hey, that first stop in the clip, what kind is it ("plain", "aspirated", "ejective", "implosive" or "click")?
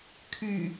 aspirated